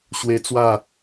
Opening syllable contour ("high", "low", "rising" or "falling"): high